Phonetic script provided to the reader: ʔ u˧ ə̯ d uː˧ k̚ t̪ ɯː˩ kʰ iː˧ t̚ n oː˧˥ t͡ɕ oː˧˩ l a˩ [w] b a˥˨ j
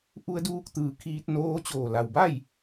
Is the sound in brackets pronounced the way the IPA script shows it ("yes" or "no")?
yes